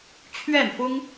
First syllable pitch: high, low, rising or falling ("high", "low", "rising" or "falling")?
falling